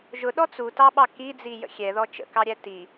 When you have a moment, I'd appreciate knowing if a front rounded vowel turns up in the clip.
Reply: no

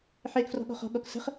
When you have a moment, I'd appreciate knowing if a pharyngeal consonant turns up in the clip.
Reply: yes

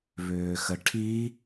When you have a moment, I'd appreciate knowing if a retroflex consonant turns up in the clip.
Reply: yes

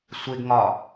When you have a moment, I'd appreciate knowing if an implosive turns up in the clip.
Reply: no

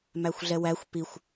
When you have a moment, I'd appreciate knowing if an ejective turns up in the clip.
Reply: no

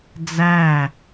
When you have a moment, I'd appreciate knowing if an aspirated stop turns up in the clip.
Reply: no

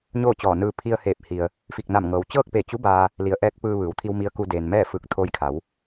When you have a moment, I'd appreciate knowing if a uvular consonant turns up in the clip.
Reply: no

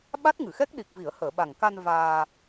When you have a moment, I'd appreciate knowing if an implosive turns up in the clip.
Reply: yes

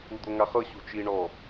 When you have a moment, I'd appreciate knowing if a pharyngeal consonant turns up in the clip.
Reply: no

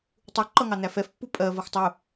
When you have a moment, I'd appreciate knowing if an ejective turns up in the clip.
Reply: yes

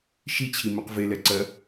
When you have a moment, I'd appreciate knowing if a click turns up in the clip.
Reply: yes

